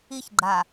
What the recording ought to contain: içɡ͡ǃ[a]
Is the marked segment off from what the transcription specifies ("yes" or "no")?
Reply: no